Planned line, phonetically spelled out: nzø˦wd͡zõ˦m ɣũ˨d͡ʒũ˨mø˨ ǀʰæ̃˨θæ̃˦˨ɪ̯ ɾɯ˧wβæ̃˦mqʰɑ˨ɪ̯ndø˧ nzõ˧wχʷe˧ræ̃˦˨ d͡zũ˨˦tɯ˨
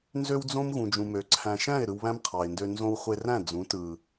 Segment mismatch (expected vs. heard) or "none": θ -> ʃ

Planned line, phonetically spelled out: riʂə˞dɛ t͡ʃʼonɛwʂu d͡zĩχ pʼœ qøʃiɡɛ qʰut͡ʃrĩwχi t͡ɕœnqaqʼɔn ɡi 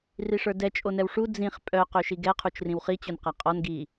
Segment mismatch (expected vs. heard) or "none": none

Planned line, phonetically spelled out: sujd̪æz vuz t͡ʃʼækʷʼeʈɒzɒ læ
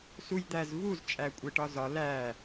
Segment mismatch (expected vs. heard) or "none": none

